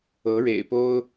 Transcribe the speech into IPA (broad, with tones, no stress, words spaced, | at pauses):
ɤ˨˦ɻḛ˨˩ɪ̯po˦ʊ̯